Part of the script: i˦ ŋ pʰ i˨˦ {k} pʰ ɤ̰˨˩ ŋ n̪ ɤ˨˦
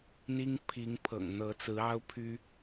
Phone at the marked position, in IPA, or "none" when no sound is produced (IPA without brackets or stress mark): ŋ